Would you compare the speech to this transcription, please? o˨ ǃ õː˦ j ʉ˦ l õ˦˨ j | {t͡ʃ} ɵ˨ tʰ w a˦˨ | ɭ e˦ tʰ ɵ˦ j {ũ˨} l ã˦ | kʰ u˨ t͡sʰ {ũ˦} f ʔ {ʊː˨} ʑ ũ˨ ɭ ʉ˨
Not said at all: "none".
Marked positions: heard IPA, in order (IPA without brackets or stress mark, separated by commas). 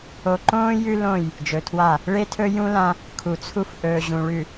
d͡ʒ, ũ˦, u˦, ɵː˨